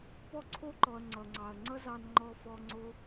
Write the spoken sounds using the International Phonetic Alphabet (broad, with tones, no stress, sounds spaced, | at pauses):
p ɔ˦ ǀʰ o˦ ǃ ɔ˨ ɐ̯ ŋ͡ǀ ʌ˨ ŋ͡ǀ ɑ˨ ɐ̯ ŋ͡ǀ ʌ˦ z ɑ˧ n ŋ͡ǃ ɔ˧ f ɔ˧ ŋ͡ǀ o˦